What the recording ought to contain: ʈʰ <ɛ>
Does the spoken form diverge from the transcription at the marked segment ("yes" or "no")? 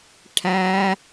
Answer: yes